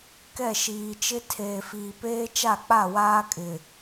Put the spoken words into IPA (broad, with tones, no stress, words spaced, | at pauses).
kɛ˦˨ʃiː˨t͡ʃɪ˦ tʰeː˨fiː˨peː˦ t͡ʃa˦˨k͡pa˦˨waː˦kʼɪ˨